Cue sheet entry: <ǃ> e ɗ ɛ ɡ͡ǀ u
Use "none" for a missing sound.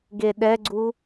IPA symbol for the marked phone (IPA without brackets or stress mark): ɡ